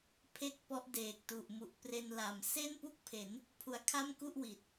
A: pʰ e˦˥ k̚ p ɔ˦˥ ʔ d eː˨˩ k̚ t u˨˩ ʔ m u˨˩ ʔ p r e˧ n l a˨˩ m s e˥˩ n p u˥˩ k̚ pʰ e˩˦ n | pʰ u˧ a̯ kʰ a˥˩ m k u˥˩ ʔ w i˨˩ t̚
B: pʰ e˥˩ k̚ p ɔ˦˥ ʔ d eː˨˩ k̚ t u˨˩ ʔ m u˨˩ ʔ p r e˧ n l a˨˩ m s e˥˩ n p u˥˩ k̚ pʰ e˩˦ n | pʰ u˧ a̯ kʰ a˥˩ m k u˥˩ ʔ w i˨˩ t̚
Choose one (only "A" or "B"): B